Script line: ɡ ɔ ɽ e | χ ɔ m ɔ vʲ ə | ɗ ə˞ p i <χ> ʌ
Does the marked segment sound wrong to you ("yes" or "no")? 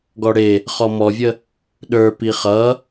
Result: no